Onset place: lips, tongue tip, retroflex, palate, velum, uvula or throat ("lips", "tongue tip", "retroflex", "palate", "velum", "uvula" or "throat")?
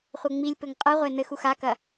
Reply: uvula